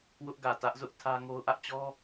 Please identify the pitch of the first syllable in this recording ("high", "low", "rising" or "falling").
high